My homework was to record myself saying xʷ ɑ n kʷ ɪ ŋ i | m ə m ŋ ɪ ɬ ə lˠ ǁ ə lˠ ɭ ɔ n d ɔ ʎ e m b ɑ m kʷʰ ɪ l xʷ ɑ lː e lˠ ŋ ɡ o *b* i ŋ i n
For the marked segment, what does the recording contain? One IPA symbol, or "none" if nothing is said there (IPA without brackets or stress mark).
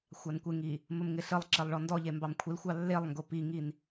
p